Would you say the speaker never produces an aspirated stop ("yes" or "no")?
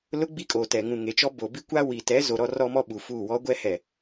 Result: yes